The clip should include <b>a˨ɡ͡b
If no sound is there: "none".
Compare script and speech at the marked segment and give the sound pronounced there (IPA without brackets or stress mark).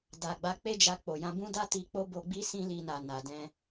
d